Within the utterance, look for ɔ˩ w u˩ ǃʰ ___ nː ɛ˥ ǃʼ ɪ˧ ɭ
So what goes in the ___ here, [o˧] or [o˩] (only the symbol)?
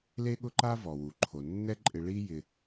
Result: o˩